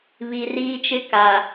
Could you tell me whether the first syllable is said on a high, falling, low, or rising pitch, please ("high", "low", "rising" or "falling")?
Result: low